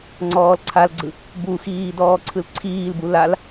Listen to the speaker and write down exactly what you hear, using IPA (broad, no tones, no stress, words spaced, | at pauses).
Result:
ŋ͡ǀɔːlǀʰalɡ͡ǀɯ | buxiː dɔːǀʰɯlǀʰiːlbu lal